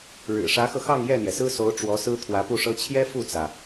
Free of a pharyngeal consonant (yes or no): yes